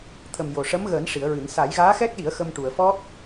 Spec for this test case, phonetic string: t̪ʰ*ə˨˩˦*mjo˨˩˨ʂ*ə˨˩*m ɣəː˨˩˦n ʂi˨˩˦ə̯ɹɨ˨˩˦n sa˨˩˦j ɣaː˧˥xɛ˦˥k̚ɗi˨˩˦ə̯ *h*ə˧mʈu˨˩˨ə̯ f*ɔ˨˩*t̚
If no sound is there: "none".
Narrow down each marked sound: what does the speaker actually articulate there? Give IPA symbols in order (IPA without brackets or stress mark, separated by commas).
ə˨˩, ə˧˥, x, ɔ˦˥